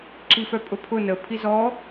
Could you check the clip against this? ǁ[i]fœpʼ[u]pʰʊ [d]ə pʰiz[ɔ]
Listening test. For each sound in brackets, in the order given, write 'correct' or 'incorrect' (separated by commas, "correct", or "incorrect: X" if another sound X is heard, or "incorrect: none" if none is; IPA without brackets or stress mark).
correct, incorrect: ʊ, incorrect: n, correct